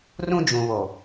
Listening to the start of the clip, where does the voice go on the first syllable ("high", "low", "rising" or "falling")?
high